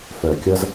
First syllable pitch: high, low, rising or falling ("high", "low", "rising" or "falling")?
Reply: low